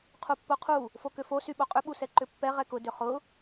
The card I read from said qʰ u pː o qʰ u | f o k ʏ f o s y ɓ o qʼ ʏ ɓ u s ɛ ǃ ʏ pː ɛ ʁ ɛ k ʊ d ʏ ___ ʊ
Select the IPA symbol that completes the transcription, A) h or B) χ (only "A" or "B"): B